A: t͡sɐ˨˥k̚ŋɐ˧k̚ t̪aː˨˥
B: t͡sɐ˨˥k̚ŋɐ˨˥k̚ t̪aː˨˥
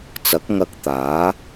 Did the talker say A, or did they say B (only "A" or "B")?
A